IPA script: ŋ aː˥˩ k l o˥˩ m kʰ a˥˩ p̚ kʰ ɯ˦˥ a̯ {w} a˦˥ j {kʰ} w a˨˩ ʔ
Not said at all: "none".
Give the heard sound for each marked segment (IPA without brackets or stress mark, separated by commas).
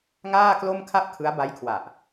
b, kʰ